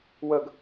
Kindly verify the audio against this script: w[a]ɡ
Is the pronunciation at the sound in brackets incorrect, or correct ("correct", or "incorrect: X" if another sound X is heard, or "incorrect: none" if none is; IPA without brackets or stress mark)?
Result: incorrect: ə